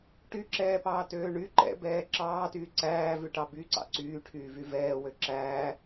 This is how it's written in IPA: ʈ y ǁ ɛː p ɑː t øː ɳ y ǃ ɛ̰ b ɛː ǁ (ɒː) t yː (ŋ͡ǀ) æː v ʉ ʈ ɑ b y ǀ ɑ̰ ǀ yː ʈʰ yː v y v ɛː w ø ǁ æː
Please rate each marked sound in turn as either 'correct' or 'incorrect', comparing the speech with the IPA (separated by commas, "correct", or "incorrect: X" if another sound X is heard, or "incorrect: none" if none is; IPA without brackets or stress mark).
incorrect: ɑː, incorrect: ǀ